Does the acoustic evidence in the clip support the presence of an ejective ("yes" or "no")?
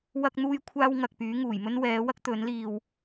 no